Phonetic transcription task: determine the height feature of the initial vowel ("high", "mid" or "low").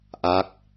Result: low